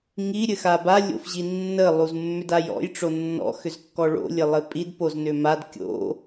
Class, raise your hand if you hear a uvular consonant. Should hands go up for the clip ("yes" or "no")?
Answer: no